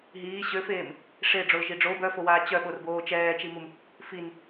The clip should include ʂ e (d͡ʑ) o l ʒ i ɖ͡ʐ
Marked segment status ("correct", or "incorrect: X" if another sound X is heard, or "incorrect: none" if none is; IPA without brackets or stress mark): incorrect: ɖ͡ʐ